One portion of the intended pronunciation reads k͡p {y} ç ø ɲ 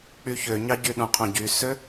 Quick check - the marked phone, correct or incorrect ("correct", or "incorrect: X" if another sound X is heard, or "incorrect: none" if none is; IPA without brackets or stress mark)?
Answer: correct